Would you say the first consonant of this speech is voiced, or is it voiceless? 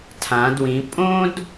voiceless